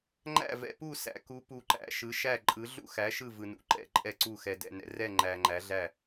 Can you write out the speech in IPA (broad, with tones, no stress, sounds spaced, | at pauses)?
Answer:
ŋ͡ǃ æ̰˦˨ v ɛ̰˨ p u˦˨ s æ̰˨˦ k u˨˦ p u˨ ǃ æ̰˨˦ ʃ ɯ˨˦ ʃ æ˦˨ ǃʼ ɯ˨˦ ɮ ṵ˦˨ x æ˨˦ ʃ ɯ˦˨ v ɯ˨ n ṵ˨ ǃ ɛ̰˦˨ ǃʼ ɛ˦˨ ǀ u˦˨ x ɛ˨ d ɛ̰˨ n ɛ̰˨ r ɛ˦˨ ŋ͡ǃ æ˨ ŋ͡ǃ æ˨˦ ɮ æ˦˨